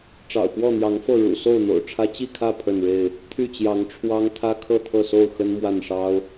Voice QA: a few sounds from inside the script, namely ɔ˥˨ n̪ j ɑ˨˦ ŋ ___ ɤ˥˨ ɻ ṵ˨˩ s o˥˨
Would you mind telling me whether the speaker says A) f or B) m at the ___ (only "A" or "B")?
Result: A